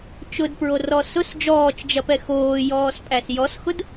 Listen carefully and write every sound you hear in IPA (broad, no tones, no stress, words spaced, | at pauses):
t͡ʃʊdpɹorɔ sʊs d͡ʒɔːt͡ʃd͡ʒɐpɛ xoːjɔːspʼæs jɔsxʊd